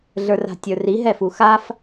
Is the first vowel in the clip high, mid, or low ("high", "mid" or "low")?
mid